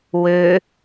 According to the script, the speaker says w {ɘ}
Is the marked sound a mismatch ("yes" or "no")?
yes